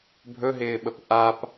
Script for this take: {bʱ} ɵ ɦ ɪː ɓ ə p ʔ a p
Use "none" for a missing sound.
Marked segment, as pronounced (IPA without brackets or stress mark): bʱ